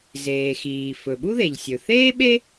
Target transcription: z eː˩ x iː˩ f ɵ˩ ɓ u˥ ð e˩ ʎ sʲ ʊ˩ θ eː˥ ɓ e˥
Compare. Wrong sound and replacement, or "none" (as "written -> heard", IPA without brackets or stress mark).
ʊ˩ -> ɵ˩